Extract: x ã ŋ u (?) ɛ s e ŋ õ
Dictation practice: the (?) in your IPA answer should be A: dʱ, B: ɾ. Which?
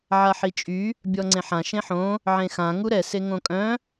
B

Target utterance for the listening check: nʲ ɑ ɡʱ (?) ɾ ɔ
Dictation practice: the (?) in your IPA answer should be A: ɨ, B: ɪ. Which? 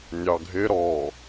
B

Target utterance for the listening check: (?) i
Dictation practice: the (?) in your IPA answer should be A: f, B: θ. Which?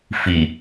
A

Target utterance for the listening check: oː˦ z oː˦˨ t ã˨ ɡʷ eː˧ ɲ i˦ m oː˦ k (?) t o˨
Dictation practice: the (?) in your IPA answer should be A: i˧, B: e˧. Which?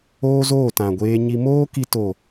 A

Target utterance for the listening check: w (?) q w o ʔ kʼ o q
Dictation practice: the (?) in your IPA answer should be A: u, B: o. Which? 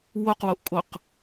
B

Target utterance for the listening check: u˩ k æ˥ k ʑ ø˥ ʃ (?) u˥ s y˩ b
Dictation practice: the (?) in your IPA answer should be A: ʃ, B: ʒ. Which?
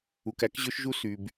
B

